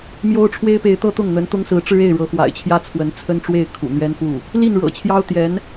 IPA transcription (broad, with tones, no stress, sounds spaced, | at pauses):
m j o˥ ʊ̯ ʈ͡ʂʰ w e˥ ɪ̯ p e˧˥ ɪ̯ t̪ ɤ˥ t̪ ʊ˥˩ ŋ n̪ ə˧˥ n t̪ ʊ˥ ŋ s ɹ̩˧˥ ʈ͡ʂ ɻ̩˥ e˥˩ ɪ̯ ɻ ɤ˧˥ x w a̰˨˩ ɪ̯ t͡ɕʰ j ä˥ t͡sʰ w ə˧˥ n t͡sʰ ə˥ n ʈ͡ʂ w e˥˩ ɪ̯ kʰ ṵ˨˩ n̪ ɥ ɛ˥ n f u˥˩ | l i˥˩ n ɻ ɤ̰˨˩ t͡ɕʰ j ɑ˥ ʊ̯ t̪ j ɛ˧˥ n